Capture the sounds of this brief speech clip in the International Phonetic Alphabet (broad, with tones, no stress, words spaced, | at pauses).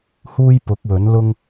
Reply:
huː˥jpʊ˨˥k̚wɵ˨˥nlʊ˥ŋ